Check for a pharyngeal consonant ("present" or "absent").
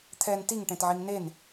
present